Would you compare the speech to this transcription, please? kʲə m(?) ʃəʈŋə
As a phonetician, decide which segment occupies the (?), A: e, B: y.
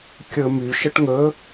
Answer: B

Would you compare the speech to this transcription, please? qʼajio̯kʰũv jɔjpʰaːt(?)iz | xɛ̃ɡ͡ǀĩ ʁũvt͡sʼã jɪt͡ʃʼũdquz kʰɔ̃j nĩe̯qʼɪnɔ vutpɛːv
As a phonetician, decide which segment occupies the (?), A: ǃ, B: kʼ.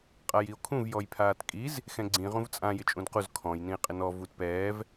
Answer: B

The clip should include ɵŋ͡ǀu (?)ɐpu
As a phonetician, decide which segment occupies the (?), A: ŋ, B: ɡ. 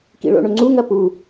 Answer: A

